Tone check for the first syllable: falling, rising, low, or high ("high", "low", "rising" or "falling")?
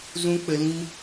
high